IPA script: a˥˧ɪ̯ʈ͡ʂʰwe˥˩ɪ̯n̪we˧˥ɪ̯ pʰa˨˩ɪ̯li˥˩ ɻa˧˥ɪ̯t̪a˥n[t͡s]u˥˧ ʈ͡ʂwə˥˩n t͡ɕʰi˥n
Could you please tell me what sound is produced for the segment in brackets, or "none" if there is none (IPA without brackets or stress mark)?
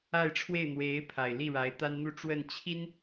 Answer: n̪